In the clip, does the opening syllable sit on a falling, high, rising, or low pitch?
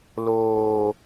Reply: low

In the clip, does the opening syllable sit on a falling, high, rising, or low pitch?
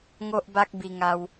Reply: high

